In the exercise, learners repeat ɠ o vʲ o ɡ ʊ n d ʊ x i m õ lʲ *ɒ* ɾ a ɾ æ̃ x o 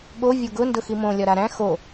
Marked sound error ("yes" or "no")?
no